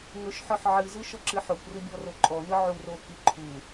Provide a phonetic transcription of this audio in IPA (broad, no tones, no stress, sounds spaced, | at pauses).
ŋ ɵ ʃ ħ ɔ ħ ʕ ɨ z ɯ ʃ ɔ ǁ ɨ ħ o kʷ r ɨ bʲ ɔ r o ǃʼ ɔ n ɯ ʕ u r o k i ǃʰ u